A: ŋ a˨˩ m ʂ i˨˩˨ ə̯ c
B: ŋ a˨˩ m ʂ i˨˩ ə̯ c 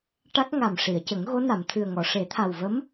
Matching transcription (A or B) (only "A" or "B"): A